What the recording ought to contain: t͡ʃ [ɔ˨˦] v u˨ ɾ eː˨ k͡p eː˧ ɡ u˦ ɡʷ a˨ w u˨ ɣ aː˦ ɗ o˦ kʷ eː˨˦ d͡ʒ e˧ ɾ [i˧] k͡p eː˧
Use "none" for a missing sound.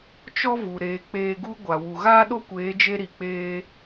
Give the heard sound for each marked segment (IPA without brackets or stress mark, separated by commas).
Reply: ɔ˦, i˨